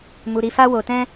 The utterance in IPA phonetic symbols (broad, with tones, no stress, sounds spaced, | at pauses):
m u˧ ɾ i˧ f a˦ w o˧ t ɛ̃˦